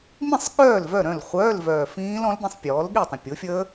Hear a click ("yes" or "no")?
no